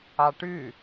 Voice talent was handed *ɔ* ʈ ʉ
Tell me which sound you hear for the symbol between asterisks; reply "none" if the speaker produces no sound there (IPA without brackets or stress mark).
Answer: ɑ